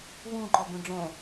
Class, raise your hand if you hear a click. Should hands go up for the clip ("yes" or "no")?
yes